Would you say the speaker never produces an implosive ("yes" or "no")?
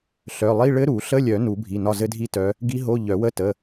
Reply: yes